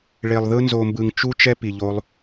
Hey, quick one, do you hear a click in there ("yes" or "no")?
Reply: no